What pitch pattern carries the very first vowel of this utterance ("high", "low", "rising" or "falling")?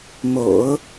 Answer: low